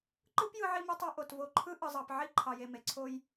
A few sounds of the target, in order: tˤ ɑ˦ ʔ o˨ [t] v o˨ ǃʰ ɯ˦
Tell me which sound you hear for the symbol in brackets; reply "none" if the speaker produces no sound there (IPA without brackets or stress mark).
t